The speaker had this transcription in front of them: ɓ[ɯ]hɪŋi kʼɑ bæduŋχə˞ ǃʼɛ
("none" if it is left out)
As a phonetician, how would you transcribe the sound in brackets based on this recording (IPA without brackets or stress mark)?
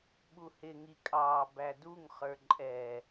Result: u